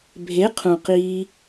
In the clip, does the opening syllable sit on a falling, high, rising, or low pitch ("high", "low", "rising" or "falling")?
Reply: rising